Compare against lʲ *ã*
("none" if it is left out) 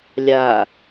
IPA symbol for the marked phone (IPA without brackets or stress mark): a